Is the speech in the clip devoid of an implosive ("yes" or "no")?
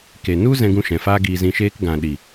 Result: no